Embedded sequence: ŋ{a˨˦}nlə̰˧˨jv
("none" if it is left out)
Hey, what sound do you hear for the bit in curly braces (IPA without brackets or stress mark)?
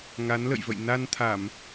a˨˦